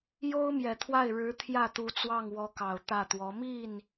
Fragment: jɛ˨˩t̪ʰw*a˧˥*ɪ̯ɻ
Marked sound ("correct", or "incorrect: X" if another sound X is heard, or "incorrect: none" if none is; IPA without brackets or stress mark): incorrect: a˥˩